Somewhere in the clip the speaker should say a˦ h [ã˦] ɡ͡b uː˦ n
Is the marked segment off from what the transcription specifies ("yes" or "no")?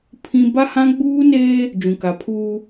no